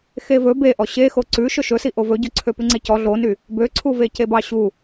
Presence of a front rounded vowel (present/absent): present